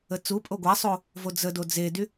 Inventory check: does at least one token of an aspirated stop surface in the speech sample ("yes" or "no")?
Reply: no